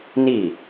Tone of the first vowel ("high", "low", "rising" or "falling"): falling